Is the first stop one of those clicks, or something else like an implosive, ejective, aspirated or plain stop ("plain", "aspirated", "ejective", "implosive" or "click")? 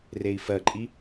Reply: click